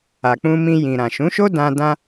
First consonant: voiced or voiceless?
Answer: voiceless